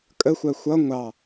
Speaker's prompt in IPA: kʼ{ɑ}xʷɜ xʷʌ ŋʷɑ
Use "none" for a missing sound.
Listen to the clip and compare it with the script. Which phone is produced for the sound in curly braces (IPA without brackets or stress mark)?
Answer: ə